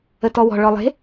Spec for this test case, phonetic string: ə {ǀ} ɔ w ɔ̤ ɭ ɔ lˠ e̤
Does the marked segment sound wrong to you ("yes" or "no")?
yes